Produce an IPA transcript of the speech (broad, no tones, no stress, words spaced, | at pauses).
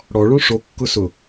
ɽɔɭõ ʂokːʊ sʊ